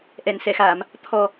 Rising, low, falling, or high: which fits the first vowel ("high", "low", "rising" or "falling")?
low